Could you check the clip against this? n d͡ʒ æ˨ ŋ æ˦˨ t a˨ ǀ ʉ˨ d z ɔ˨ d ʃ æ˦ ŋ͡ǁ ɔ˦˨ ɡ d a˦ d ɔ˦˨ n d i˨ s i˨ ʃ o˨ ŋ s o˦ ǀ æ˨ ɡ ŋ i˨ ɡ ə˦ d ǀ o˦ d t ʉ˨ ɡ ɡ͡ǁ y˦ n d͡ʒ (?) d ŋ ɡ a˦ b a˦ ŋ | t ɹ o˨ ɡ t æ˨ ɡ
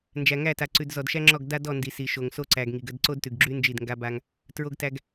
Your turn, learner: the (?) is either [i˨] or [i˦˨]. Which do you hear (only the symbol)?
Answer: i˦˨